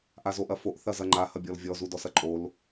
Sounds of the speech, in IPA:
ʔ a z o ʔ ɐ f o ʔ θ ɐ z ɐ ŋ͡ǃ a h ɐ bʲ ɔ l vʲ ɔ z u d ɔ s ɐ ǃʼ o l

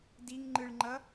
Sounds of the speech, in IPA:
d i ŋ ŋ͡ǃ ɯ ɭ ŋ͡ǃ ʌ

